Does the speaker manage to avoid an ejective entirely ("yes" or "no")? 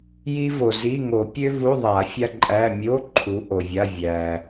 no